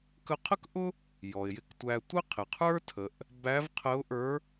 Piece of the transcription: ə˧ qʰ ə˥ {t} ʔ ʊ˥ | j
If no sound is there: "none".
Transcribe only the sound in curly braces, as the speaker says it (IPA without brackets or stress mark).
k